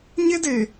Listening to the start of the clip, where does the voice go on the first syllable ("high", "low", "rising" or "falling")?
high